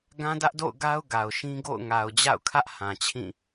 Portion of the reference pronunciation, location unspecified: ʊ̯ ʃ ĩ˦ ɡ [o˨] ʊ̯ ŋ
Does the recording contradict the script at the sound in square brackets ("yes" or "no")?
yes